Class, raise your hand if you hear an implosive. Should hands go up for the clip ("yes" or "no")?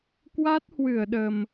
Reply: yes